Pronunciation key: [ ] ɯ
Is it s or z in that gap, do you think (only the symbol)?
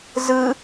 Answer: z